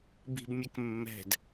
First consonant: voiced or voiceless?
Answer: voiced